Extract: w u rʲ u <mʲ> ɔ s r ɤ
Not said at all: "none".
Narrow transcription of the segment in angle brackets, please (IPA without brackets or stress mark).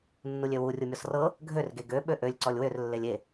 mʲ